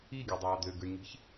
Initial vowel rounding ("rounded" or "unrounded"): unrounded